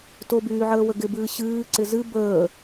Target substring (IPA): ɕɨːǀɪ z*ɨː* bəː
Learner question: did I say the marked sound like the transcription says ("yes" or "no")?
no